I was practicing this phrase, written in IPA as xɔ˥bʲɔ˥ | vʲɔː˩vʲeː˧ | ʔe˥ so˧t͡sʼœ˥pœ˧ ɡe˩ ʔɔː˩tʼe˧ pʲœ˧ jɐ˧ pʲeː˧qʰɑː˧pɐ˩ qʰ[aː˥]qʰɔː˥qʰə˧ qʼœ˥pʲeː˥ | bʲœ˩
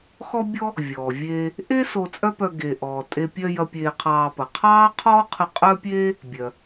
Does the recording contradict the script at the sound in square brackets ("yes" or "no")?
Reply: yes